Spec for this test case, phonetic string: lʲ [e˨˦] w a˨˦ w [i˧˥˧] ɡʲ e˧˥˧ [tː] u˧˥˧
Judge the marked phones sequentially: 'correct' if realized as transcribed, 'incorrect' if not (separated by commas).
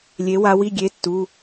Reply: correct, correct, correct